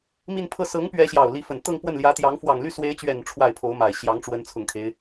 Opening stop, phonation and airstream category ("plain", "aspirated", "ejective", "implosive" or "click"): aspirated